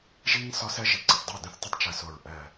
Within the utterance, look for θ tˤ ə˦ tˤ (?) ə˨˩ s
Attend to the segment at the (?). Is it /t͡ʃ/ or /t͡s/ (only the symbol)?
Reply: t͡ʃ